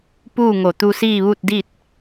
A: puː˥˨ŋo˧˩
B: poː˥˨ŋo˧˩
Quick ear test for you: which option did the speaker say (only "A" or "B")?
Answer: A